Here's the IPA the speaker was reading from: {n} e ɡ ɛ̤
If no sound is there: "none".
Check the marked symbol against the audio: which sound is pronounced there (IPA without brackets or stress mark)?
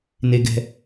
n